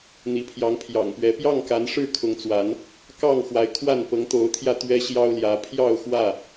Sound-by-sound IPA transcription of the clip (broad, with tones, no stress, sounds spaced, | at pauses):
n̪ i˨˦ pʰ j ɑ˨˦ ŋ pʰ j ɑ̰˨˩ ŋ p ɥ ɛ˨˦ p j ɑ˥˨ ŋ k a˨˦ n ʂ ɻ̩˥˨ kʰ ʊ˨˦ ŋ t͡s w a˨˦ n | k ɑ˥˨ ŋ x w a˨˦ ɪ̯ kʰ w a˥˨ n p ɤ˨˦ ŋ t̪ o˨˦ ʊ̯ t̪ʰ j ä˧ t̪ ɥ ɛ˦ ɕ j ɑ˦ ʊ̯ l j ä˨˦ pʰ j ɑ˥˨ ʊ̯ x w ä˥˨